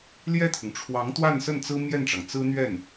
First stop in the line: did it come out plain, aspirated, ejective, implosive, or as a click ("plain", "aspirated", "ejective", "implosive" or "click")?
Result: aspirated